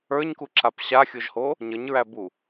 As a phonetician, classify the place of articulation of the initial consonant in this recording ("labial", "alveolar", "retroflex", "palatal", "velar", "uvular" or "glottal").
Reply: palatal